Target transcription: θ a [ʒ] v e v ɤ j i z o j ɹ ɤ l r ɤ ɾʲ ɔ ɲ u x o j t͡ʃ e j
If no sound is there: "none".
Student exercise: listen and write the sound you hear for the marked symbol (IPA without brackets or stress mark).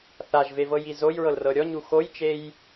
ʒ